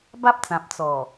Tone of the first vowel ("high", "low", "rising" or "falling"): high